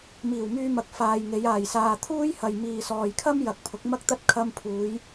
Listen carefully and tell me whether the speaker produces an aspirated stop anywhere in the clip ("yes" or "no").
yes